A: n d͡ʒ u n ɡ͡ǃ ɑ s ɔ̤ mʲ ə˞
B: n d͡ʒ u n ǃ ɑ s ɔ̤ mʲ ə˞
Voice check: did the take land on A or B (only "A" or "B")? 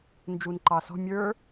B